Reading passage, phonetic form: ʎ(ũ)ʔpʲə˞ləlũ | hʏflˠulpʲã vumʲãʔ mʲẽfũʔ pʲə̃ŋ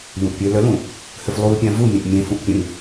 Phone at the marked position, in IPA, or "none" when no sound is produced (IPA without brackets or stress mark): ũ